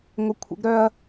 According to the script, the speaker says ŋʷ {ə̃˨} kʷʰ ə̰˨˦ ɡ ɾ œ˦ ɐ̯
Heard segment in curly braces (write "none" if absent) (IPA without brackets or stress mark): ə˨